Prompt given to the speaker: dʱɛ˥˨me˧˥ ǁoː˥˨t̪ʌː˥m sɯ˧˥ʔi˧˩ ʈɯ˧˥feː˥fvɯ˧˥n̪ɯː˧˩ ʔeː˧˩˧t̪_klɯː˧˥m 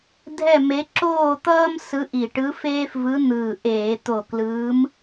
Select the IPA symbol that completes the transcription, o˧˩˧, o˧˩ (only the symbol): o˧˩